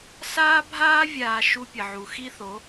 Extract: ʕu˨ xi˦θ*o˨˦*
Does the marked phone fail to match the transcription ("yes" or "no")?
no